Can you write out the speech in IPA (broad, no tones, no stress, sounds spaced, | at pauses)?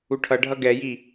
u ʈʰ ʌ ɖʱ ʌ ɡ ɛ j i